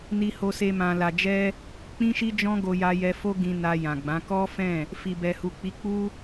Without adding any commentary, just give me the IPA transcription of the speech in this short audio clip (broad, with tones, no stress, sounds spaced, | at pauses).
n i˧ h o˧ s e˧ m ã˨ l a˨ d͡ʒ ɛ˧ | k͡p ĩ˦ ʃ i˦ d͡ʒ ɔ̃˦ ɡ o˧ j a˧ j ɛ˧ f o˦ ɡ ĩ˧ n a˧ j ã˨ ɡ͡b ã˨˦ k ɔ˦ f ɛ̃˦˨ | f i˨ b ɛ˨ h u˨ k͡p i˨˦ k͡p u˦